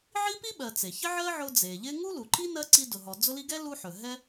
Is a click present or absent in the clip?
present